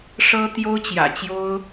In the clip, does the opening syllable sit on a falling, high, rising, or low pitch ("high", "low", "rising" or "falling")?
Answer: high